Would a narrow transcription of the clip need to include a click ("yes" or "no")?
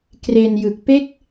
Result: no